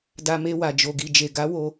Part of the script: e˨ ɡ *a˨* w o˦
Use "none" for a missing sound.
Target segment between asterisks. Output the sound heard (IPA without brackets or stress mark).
a˨˦